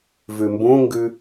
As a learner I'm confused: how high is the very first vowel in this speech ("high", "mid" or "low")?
high